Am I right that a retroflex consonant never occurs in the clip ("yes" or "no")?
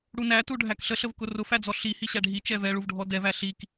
no